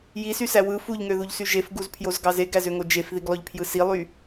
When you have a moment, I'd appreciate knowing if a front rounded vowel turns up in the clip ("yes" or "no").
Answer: yes